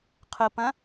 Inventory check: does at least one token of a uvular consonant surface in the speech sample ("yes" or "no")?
yes